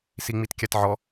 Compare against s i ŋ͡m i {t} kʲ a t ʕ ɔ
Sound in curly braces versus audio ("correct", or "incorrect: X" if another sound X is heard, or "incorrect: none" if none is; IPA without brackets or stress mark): correct